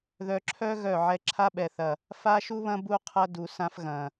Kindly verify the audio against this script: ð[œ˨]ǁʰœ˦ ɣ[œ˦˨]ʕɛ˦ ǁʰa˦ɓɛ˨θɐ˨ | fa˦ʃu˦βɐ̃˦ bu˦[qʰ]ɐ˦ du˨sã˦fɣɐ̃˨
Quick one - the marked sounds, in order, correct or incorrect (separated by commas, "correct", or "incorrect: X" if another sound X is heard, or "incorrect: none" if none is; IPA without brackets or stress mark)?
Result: correct, correct, correct